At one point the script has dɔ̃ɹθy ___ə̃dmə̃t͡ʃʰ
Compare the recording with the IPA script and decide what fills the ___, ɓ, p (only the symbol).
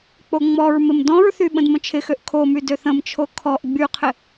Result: ɓ